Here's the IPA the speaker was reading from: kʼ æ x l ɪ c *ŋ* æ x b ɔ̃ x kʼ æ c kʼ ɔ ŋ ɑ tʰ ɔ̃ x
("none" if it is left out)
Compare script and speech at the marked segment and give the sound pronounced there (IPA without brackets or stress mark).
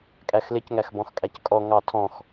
ŋ